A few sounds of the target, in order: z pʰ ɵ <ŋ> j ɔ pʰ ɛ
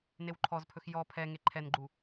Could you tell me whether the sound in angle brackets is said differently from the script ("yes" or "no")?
yes